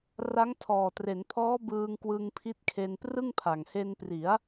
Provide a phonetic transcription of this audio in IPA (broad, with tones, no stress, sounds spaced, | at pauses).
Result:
r a˦˥ ŋ tʰ ɔː˨˩ t r e˩˦ n pʰ ɔː˦˥ b ɯː˧ ŋ k w ɯ˧ ŋ pʰ i˦˥ t̚ kʰ e˧ n p r ɯ˥˩ ŋ pʰ a˨˩ ŋ h e˧ n p r i˩˦ a̯